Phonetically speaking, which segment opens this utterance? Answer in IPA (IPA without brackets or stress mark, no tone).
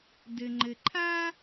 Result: d